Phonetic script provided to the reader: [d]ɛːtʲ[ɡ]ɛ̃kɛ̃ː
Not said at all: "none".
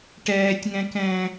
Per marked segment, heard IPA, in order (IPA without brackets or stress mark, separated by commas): ʈ, ŋ